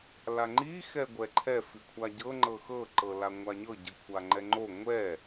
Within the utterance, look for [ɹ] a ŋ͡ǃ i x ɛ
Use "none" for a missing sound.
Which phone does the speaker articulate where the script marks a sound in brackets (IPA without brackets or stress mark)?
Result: l